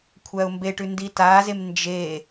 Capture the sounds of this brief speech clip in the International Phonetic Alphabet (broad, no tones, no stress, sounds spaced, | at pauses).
kʷʰ æ ʊ̯ m b e ʈ ʉ n d i t a z e m n d͡ʒ e